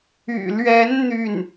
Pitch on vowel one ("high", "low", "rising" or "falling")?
low